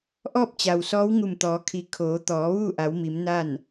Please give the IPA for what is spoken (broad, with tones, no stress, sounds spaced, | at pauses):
ʔ ɔː˥˨ p̚ t͡ɕ a˩ w s ɔː˧˥ w ŋ u˧˩ m t̪ ɔː˩˧ kʰ i˩˧ kʰ oː˩˧ t̪ ɔː˩˧ ʋ uː˥˨ ʔ a˩˧ w m i˩˧ m n a˥˨ n